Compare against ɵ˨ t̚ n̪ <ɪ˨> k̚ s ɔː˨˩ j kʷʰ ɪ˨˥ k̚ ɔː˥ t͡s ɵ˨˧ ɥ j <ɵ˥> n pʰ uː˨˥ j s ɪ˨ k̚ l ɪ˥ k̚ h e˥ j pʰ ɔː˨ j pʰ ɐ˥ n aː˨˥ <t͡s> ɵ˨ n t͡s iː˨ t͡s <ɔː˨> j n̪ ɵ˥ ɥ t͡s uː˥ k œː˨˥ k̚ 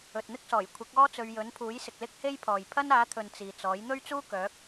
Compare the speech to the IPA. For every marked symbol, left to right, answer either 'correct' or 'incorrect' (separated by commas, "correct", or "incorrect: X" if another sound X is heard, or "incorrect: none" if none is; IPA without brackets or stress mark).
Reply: incorrect: ɪ˥, incorrect: ɵ˨˥, incorrect: t̪ʰ, incorrect: ɔː˨˥